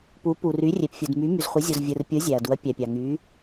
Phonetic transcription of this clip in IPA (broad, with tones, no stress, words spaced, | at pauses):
pu˩˧pu˩ry˩˧ rʲe˩pfʲu˩d my˩˧my˩zχʷi˩˧ zʲo˩zvʲɯ˩rpʲɯ˩˧ zʲæ˩ɐ̯du˩˧ɐ̯pʲæ˩pʲɑ˩ ŋy˩˧